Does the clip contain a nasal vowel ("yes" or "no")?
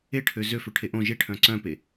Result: yes